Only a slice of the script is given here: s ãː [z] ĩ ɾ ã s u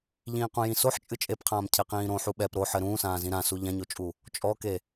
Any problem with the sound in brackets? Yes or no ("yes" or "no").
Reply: no